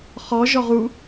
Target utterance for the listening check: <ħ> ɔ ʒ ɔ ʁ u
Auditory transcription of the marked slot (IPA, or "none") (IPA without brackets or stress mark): χ